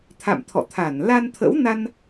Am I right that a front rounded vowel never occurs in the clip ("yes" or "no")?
yes